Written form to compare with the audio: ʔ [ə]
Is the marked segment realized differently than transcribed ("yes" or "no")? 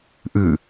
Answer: yes